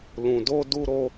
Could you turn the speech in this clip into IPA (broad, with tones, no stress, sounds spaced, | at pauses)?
l ũ˧ d o˦ d u˦ ɾ o˦